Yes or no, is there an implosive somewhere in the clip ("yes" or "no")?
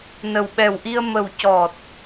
yes